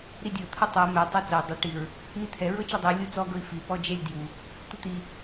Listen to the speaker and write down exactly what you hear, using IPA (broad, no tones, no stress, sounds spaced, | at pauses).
ɾ i dʲ ɤ t̪ʰ ɤ tˤ ɤ m ɛ tˤ ɛ t͡s ɤ i̯ dˤ o ʈ i ɹ | m i t̪ʰ ɛ ɹ ɤ t͡ʃ ɛ dˤ i u̯ lʲ o t͡s ɔ ɡ ɤ i̯ f i p ɔ d͡ʒ ɛ lʲ d j u | t̪ u t̪ i